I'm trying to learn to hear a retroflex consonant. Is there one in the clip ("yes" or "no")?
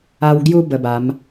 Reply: no